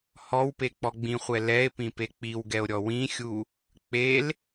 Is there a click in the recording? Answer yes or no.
no